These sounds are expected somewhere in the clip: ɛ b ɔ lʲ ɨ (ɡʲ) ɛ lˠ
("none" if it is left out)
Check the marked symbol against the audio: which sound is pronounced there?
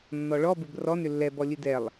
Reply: d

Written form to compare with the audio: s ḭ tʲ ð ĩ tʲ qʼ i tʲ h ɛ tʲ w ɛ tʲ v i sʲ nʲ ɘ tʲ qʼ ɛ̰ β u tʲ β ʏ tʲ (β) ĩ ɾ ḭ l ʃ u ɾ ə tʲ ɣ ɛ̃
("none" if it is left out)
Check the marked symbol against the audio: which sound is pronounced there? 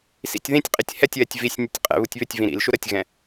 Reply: v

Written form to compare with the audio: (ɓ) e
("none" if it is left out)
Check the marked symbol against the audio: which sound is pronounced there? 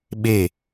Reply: ɓ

